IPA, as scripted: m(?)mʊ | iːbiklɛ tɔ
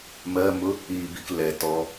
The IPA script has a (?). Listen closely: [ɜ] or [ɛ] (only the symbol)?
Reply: ɜ